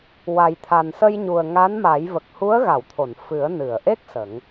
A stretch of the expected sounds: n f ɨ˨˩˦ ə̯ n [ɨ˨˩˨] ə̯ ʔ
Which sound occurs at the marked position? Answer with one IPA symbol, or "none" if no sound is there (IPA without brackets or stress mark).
ɨ˨˩˨